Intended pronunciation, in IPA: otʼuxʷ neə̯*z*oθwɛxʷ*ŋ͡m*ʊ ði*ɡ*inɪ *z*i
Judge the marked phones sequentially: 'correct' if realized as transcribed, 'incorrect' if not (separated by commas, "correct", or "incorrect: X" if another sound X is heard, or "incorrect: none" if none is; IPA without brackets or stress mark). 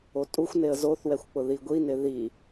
correct, incorrect: k͡p, incorrect: ɡʷ, incorrect: ð